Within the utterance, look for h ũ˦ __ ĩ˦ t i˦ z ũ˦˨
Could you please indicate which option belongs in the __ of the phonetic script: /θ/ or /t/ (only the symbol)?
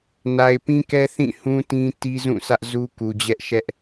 t